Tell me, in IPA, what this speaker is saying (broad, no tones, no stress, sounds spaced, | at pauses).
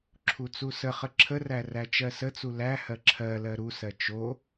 ǁʰ u t͡s u s ə χ ə ǁʰ ə r æ r æ t͡ʃ ɜ s ə t͡s u l æ h ɜ ǁʰ ɜ l ɜ ɾ u s ɜ t͡ʃ o